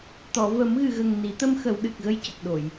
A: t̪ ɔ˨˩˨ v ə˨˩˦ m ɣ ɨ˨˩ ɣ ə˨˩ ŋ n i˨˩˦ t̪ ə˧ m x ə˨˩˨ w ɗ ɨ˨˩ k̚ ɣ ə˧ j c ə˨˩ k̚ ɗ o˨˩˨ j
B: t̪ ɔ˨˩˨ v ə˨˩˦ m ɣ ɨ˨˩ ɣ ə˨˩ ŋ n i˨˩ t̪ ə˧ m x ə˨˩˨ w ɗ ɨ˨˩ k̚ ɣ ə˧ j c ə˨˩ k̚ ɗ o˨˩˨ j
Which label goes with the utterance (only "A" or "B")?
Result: A